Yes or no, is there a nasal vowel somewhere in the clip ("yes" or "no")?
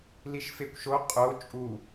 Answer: no